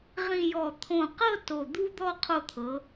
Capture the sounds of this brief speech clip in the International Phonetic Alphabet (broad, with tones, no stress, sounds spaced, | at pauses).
ʁ ĩ˧ j ɔ˧˩ t̪ʰ õ˧˩ q ɤ˥˧ t o˧˩ d̪ u˥ d̪ ɔ˥˧ qʰ o˧ t̪ʰ ɤ˩˧